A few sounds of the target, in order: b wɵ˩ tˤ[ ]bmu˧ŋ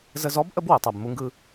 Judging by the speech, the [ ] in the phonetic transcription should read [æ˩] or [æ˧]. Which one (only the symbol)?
æ˩